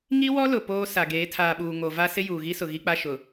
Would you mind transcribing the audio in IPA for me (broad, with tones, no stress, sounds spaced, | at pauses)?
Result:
ŋ i˦ w ɔ˦ l ʊ˨ p oː˦ s a˨ ɡ eː˨˦ tʰ aː˨ ɓ uː˨ ŋ o˨ v a˦ s ɪ˦ j uː˨ ɣ i˦ s ʊ˨ ɣ i˦ k͡p a˦ ʃ ʊ˨